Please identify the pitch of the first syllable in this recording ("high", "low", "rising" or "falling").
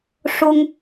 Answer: high